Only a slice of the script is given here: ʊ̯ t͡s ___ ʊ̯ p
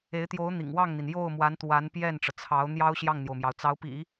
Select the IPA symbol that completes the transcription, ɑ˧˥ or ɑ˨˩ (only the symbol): ɑ˧˥